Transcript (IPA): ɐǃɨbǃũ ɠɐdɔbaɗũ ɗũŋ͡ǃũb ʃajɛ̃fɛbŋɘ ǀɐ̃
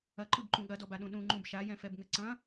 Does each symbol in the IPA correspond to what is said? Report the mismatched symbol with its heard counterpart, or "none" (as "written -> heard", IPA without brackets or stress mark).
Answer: none